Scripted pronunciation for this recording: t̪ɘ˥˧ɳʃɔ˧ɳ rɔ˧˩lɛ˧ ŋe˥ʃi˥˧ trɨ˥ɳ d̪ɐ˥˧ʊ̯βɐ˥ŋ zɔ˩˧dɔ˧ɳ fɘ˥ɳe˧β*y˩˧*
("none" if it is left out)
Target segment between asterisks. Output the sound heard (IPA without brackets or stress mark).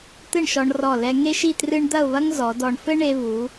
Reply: u˩˧